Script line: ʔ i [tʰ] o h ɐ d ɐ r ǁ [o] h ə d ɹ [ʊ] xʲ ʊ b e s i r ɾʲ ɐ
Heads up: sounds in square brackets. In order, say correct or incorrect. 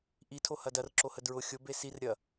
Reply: correct, correct, correct

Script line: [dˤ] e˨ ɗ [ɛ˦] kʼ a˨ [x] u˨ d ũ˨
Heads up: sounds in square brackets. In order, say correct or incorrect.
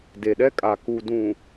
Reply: incorrect: d, correct, incorrect: k

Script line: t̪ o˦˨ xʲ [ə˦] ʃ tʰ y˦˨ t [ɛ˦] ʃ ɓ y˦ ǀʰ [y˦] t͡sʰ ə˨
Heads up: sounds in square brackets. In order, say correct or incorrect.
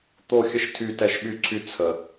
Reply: correct, correct, correct

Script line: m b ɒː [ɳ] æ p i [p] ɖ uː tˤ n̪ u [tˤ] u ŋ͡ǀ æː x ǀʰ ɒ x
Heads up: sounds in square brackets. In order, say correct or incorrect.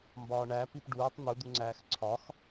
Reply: correct, correct, incorrect: d̪

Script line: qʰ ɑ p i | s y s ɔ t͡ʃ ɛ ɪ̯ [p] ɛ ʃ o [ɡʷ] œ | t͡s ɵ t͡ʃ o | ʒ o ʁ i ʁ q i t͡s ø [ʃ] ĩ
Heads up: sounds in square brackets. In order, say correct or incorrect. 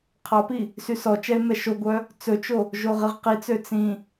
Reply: incorrect: m, correct, incorrect: t͡s

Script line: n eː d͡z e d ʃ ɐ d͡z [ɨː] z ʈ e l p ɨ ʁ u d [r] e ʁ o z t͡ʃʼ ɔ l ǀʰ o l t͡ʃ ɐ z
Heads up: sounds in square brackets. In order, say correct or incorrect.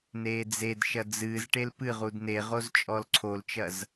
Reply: correct, incorrect: n

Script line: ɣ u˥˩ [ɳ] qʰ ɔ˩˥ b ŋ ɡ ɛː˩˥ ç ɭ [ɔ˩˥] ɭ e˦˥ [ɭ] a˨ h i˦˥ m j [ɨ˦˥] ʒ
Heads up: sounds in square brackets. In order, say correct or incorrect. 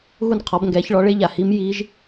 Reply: incorrect: n, correct, incorrect: ʎ, incorrect: i˦˥

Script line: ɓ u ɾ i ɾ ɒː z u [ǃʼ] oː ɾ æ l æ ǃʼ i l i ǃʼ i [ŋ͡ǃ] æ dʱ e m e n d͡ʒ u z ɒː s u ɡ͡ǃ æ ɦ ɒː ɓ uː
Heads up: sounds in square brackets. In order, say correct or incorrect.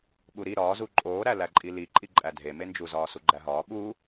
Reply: correct, incorrect: ǃʼ

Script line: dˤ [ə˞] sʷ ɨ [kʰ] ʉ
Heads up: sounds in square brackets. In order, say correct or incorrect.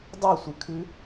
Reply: incorrect: ɐ, correct

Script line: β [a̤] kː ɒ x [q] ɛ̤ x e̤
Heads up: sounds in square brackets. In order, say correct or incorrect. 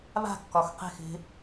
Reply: correct, correct

